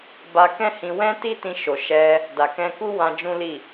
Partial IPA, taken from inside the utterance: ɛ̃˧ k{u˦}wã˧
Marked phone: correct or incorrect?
correct